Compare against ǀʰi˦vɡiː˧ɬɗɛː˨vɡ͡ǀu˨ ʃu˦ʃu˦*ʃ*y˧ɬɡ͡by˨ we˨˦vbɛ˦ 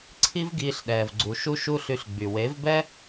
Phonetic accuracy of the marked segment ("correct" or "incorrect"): incorrect